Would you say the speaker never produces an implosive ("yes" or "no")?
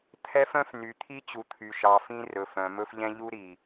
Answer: yes